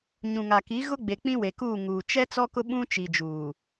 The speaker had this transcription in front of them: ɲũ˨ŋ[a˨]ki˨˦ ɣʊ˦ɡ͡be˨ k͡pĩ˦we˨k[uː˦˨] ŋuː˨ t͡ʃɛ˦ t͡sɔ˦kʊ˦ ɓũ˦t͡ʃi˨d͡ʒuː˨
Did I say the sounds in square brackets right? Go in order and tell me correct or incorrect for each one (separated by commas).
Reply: correct, correct